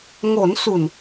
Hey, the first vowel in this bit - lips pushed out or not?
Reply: yes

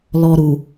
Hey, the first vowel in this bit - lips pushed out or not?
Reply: yes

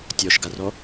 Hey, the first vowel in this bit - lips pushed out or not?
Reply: yes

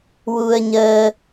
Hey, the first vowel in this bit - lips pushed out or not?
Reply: yes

